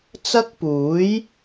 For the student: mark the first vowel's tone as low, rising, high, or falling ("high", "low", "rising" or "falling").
high